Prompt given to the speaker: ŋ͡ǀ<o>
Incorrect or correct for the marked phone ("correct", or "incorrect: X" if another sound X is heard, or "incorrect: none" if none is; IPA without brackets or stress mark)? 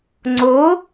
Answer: correct